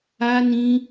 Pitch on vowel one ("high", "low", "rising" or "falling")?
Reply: high